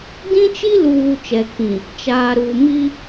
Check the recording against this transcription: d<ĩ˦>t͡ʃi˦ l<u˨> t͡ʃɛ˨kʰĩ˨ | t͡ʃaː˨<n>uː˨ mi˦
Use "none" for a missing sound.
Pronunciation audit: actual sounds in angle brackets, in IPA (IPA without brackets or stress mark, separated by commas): ĩ˦, uː˨, ɾ